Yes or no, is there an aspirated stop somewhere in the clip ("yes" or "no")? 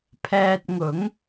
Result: yes